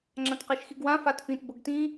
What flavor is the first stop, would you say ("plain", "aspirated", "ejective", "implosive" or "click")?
click